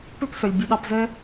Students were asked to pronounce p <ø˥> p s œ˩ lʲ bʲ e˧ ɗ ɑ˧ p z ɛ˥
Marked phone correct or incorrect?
correct